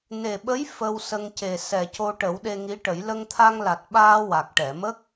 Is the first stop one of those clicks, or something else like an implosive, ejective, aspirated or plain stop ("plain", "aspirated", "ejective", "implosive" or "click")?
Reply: implosive